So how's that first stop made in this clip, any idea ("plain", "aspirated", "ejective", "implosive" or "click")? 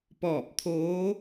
plain